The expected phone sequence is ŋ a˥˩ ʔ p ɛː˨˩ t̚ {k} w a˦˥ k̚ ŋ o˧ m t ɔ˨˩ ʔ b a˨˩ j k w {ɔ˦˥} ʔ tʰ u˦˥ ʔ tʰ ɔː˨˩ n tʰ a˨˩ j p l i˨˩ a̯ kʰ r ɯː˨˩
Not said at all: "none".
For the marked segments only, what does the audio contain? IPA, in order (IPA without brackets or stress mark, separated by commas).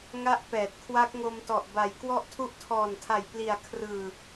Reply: kʰ, ɔ˥˩